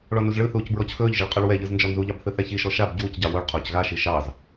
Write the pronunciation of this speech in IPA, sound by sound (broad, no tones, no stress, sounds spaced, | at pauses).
ɭ ɔ n u z ɭ ɯ θ uː c b ɹ ɔ c x ɵː ʎ ʒ ɯ ɭ qʼ ɵ ɭ w ɛ ʎ ɯ z n d͡ʒ ɔ n z u ʎ ɑ b θ ɯ θ ɛ ç i ʃ ɔ ʃ a b ɟ uː c ɟ ɑ w o ɭ qʰ oː c ɣ a ʃ i ʃ ɑ z